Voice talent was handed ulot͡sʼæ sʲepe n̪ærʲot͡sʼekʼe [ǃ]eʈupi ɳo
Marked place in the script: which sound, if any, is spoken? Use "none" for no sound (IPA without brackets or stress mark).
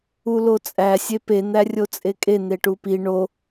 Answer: n̪